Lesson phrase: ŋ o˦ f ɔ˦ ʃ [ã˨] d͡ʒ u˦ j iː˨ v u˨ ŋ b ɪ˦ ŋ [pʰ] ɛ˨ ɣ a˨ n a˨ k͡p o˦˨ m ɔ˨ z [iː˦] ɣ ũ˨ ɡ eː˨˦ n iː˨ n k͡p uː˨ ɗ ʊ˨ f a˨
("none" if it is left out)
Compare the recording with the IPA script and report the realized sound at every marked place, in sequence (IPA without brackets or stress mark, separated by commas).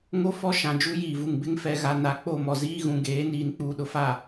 ã˨, f, iː˦